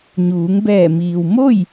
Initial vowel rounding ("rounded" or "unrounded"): rounded